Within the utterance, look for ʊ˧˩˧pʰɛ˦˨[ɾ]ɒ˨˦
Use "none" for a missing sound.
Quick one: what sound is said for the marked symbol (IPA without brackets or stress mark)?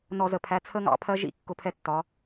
tː